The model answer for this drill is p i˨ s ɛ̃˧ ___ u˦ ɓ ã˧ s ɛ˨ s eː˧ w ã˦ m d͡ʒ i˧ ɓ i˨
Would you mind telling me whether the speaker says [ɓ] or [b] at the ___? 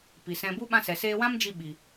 b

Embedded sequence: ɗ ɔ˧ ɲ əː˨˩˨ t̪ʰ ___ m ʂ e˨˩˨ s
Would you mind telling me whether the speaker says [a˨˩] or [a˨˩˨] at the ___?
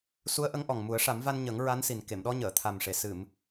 a˨˩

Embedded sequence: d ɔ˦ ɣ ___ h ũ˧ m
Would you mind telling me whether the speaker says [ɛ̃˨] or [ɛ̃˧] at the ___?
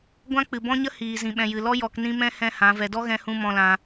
ɛ̃˧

